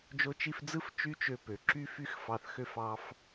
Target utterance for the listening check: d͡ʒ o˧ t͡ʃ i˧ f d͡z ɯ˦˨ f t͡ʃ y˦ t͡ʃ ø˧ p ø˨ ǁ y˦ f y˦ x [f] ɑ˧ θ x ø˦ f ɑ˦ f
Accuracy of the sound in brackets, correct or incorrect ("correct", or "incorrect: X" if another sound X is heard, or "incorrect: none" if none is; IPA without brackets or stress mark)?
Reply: correct